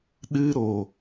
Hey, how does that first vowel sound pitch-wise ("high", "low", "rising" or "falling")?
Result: high